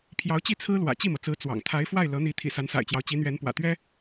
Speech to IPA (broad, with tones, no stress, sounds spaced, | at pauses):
pʰ j ɑ˧˥ ʊ̯ t͡ɕ i˥˩ t͡sʰ ɹ̩˥ l w ä̰˨˩ t͡ɕ i˥˩ m ɤ˩ t͡s ɹ̩˧˥ t͡s w ɑ̰˨˩ ŋ t̪ʰ a˧˥ ɪ̯ f w a˥˩ ɪ̯ l ɤ˧˥ n̪ i˧˥ t̪ʰ ḭ˨˩ s a˧˥ n s a̰˨˩ ɪ̯ t͡ɕ j ɑ˦ ʊ̯ t͡ɕ i˧˥ n̪ ɥ ɛ˧˥ n p w ä̰˨˩ t̪ ɥ ɛ˥